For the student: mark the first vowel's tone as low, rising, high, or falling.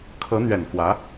rising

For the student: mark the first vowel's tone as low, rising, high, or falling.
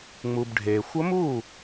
low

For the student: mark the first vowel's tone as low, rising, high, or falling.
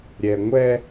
low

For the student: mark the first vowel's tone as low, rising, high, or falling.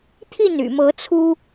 falling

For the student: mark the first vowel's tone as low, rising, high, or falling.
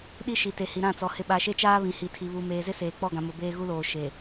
high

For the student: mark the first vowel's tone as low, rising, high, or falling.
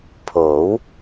rising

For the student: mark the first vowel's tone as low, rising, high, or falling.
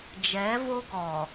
rising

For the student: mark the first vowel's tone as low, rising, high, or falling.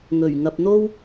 low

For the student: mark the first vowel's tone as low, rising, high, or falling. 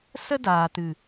high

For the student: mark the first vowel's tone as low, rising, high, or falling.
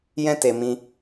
high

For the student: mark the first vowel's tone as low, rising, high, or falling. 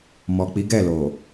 low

